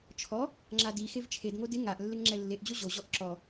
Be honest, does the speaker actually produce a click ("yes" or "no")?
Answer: yes